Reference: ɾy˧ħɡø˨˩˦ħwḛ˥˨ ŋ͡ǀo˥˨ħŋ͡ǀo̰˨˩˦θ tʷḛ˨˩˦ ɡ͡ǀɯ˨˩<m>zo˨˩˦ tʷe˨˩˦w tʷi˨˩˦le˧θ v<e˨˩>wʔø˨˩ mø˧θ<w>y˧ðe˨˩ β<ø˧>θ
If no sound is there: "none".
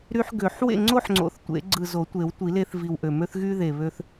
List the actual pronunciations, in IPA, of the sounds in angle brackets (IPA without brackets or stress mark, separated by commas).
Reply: none, i˨˩, ɣ, ø˧